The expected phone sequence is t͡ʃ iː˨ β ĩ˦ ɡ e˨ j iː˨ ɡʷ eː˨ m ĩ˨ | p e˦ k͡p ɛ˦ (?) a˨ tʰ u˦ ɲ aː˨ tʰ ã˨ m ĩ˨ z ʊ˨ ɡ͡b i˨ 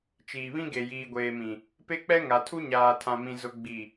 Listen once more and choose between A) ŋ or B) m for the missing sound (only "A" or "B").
A